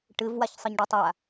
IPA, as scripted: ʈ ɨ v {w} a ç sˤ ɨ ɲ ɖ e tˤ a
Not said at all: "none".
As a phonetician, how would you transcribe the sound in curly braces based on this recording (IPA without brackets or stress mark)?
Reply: w